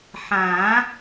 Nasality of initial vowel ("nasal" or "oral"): nasal